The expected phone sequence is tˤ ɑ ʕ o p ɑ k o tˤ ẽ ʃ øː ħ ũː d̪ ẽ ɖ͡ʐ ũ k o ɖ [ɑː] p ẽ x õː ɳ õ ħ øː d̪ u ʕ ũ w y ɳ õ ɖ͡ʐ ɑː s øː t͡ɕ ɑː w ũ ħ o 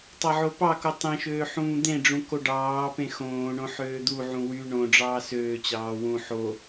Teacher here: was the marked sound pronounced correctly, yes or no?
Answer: yes